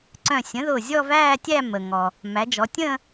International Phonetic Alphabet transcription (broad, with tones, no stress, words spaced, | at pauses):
ǀœ̃˧˩sʲə̃˩˥ðʊː˧˩ zʲɔ˥˧væː˥˧tʲæ˥˧ mə˩ŋɔ˩ | mæ˩˧d͡ʒɔ˩˧tʲə̃ː˥˧